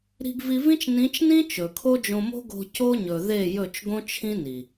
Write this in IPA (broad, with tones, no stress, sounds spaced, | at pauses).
ɾ i̤˧ ɡ v i˧ v ĩ˦ t͡ʃ n ĩ˨˦ t͡ʃ n ĩ˦ t͡ʃ ɵ˨ kʰ o˦ d͡ʒ õ˧ m o̤˦ ɡ o̤˧ c o˦ ɲ ɵ˨ ð e˦˨ j ɵ˦˨ t͡ʃ ɡ õ˦ t͡ʃʰ ĩ˦ n i˨